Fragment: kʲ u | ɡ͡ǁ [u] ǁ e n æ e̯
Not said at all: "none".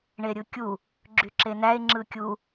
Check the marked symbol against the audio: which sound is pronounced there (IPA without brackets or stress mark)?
y